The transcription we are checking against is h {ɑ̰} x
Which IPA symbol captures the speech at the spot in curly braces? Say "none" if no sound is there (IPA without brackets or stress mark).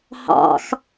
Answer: ɑ̰